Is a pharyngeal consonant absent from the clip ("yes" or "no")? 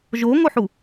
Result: no